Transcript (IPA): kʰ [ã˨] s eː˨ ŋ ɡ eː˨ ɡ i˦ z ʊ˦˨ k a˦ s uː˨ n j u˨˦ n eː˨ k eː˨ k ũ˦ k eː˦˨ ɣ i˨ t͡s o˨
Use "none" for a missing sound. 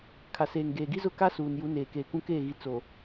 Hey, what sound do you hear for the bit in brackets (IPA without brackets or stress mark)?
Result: a˨